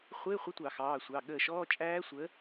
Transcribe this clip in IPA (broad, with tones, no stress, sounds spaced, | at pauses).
χʷ ɪː˧˥˧ χʷ ɪ˧˥˧ tʷ ɑ˧˩˧ x ɑː˩˧˩ sʷ ɑ˩˧˩ ɠ əː˧˩ ʃ ɔː˧˥˧ t͡ʃʼ æː˦˥ sʷ ə˨˦